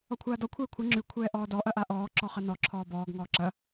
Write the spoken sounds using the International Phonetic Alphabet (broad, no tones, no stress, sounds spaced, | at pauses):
ɔ kʷʰ aː d ɔ kʷʰ ɛː kʷʰ ɐ ŋ͡ǁ ʉ kʷʰ ɛː ʔ ɔː d ɔ ʔ ɐ ʔ a ʔ ɔː ǁ ɔ χ ɐ n ɔ ǁʰ ɔː b ɔː ɡ ŋ ɔː ǁ ɐ